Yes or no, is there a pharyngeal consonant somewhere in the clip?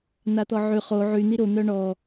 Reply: yes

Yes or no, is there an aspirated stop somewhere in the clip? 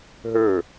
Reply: no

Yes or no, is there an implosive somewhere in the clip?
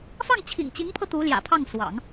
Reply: no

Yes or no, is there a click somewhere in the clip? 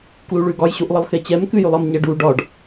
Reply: no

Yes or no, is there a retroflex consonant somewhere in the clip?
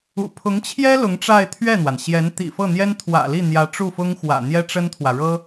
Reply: yes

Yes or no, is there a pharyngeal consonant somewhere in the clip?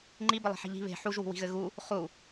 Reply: yes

